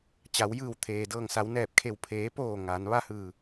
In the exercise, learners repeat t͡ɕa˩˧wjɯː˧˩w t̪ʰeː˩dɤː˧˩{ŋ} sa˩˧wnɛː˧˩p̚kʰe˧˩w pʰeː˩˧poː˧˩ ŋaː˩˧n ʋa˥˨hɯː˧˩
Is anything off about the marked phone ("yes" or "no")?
no